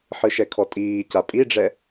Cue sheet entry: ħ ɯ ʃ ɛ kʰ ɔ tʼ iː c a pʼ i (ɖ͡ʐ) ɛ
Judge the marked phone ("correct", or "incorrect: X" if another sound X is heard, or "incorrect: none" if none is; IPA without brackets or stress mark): correct